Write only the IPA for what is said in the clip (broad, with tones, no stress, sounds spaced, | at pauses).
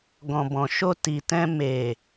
ɡ ɔ̃˨ b ɔ̃˨ ʃ o˧ t i˨ t ɛ̃˧ m e˨